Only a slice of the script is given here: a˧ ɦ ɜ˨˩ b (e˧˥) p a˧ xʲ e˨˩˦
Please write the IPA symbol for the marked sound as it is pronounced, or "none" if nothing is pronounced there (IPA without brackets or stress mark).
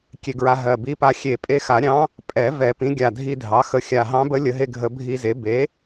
i˧˥